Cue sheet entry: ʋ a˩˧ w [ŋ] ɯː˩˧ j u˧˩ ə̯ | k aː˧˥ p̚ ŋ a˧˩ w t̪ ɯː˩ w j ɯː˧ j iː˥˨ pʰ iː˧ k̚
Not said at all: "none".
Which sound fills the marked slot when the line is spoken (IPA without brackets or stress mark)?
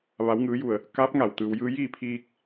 ŋ